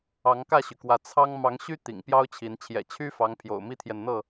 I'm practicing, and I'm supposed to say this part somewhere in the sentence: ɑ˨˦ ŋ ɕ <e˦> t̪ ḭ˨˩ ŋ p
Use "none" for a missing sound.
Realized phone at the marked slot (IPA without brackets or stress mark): y˦